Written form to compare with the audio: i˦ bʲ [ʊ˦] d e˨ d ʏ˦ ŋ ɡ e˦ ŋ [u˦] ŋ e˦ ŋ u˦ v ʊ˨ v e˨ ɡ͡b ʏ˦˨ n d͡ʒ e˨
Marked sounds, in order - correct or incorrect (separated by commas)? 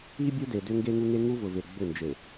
incorrect, correct